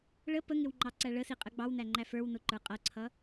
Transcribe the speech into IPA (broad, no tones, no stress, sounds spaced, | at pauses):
ɭ ə p ə ŋ ɪ w ŋ͡ǃ ɑ ǀ æ ɭ ə s i qʼ ə ɡ͡b ɑ w n æ ŋ͡ǃ æ f ə˞ w n ʊ ǃ ə˞ qʼ ʌ ǀʰ ʌ